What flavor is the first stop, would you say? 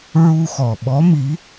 implosive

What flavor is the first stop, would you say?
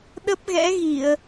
implosive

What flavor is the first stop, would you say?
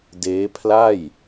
plain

